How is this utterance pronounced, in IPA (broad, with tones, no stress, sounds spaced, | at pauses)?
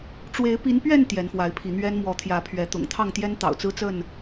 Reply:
ʈ͡ʂ w e˨˦ ɪ̯ p i˨˦ n p ɥ ɛ˥˨ n t̪ j ɛ˨˦ n f w a˨˦ ɪ̯ pʰ i˨˦ n̪ ɥ ɛ˦ n m w ɔ˨˦ t̪ʰ j ä˨˦ pʰ ɥ ɛ˨˦ t̪ ʊ̰˨˩ ŋ t̪ʰ ɑ˥˨ ŋ t̪ j ɛ˦ n t̪ ɑ̰˨˩ ʊ̯ t͡s ɹ̩˦ t͡s ə˥˨ n